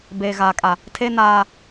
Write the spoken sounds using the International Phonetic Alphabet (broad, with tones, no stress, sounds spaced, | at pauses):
b eː˨ ɣ aː˨ kʼ a˨ | tʰ e˦ n aː˦